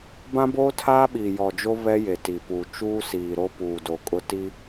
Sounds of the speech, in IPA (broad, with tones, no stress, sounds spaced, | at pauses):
b ã˦ b oː˦ tʰ aː˦ ɓ i˨ j ɔ˨ d͡ʒ o˦ β ɛ˦ j e˨ t i˨ p u˨ t͡ʃ uː˦ s iː˨ ɾ o˦ p uː˨ d o˨ kʼ ʊ˦ t i˦